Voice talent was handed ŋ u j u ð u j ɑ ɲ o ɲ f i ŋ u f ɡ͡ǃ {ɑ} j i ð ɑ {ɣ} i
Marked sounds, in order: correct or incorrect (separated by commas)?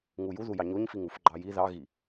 correct, correct